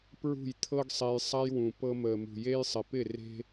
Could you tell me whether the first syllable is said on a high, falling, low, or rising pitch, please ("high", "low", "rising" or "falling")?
falling